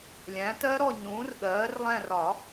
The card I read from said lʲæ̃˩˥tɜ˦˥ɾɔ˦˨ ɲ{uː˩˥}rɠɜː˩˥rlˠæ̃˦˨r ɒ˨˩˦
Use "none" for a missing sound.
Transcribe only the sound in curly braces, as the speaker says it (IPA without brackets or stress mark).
ũː˩˥